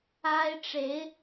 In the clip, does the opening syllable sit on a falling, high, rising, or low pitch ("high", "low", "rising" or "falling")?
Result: high